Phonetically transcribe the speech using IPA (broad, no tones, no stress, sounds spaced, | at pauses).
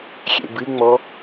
xʲ ḛ b ɨ ŋ͡m ɔ